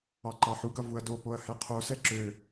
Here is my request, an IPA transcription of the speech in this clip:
ɑ ǃ ɑ ħ u ɡ ʌ v u ɐ̯ d o p o ɐ̯ h ɛ qʰ o s ɛ ǁ ø

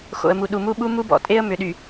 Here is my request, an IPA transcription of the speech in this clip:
x o̰˨ ə̯ m u˨ ɗ u˨ m u˦ ɓ u˦ m u˦ b ɔ̰˨ tʼ e˦ ə̯ m ʏ˨ ɗ y˨

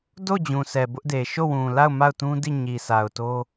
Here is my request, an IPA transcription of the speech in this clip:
d o˦˨ d͡ʑ ũ˨ s ɛ˨ b ʊ˦ ʔ d e˨ ʃ o˦˨ w ũ˨ l a˦˨ ʊ̯ m a˦˨ ʊ̯ t ũ˦ d i˦˨ ɲ i˨ s a˨ ʊ̯ t o˦

